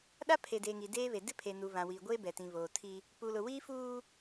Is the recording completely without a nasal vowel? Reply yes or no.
no